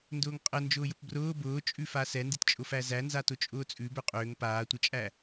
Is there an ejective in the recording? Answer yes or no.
yes